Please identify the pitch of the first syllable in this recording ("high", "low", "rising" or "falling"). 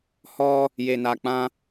high